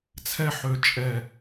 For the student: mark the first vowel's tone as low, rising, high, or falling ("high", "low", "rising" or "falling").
high